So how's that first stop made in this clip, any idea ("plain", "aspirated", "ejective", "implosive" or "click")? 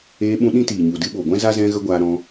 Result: implosive